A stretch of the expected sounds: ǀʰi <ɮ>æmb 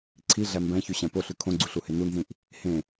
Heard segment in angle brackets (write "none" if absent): ɮ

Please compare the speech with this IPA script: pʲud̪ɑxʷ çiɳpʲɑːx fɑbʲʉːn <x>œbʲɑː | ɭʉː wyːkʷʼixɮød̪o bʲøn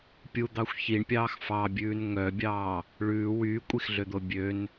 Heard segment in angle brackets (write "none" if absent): ŋ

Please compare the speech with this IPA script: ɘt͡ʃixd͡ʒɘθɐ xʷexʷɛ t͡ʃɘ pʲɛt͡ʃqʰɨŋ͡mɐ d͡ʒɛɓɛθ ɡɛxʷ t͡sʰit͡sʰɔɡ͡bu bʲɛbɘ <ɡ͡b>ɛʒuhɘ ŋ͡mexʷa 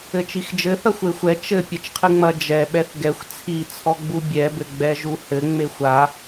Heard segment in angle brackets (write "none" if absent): ɡ͡b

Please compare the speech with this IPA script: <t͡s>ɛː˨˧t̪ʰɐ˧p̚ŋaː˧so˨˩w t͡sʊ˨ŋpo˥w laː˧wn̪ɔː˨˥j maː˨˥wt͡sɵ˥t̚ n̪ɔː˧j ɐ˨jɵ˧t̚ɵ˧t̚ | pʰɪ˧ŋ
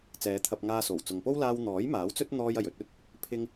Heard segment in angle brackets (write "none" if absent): t͡s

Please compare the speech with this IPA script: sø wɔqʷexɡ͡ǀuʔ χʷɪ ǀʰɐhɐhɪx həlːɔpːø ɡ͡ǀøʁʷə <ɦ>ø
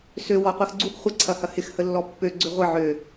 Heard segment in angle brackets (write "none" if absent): ʕ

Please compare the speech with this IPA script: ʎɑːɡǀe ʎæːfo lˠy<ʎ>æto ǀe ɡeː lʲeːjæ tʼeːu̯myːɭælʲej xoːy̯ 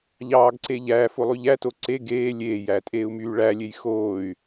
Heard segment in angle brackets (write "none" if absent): ʎ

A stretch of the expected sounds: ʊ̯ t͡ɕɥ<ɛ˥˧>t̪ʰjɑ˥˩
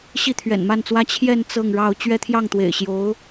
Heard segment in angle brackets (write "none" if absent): ɛ˥˧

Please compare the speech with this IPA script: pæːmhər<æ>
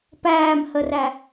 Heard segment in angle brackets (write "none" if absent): æ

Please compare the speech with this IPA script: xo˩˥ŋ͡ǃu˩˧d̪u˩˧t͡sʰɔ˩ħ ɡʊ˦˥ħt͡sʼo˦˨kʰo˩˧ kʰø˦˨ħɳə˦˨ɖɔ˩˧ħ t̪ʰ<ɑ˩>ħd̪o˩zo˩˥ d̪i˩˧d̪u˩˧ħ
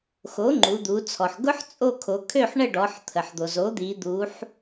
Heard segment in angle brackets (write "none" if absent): ə˩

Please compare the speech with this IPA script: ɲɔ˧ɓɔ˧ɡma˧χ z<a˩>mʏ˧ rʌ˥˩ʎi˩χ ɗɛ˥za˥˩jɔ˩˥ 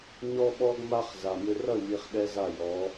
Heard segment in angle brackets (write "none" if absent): a˩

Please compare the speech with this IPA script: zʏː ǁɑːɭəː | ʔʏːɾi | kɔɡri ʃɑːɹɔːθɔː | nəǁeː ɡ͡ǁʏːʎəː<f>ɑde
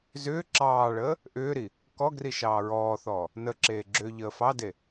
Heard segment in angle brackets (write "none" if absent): f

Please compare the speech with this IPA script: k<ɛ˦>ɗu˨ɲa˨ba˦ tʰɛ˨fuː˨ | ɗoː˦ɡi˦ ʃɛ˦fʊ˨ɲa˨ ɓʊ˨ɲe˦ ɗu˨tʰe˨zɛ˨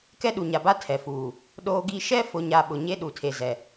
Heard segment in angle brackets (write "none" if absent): ɛ˦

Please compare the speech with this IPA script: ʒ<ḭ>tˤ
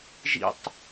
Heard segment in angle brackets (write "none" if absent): ḭ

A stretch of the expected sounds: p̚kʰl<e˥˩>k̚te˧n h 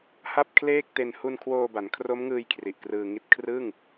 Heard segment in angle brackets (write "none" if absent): eː˥˩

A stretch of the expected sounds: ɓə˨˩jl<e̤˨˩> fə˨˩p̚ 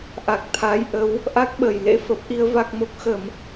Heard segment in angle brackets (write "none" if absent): ḛ˧˥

